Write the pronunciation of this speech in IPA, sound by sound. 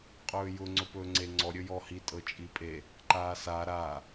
qʼ ɵː j ʊ ŋ͡ǀ ɵ p ɵː ŋ͡ǀ e ŋ͡ǀ ɔ ɾʲ ɵ j ɔ h i tʼ ɤ t͡ʃʼ i pʼ e | ǃ aː s a ɾ aː

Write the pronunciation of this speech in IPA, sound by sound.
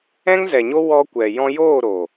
ɛ̃˦ ŋ z ɛ˨ ɲ o˦ w ɔ˧ kʷ ɛ˨ j ɔ̃˧ j oː˦˨ ɾ o˨

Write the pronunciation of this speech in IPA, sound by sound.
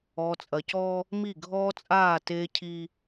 ɔː˨ t͡sʼ ɐ˨ c ɔː˦ | m i˦˨ ɡʱ ɔː˦ t͡sʼ aː˦˨ t eː˦ cʰ i˦

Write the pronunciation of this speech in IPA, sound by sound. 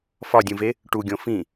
f ɒ dʲ ũ v e | ʈ u ɡʲ õ f ĩ

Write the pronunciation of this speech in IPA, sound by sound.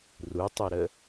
r u tˤ u ɾ ə

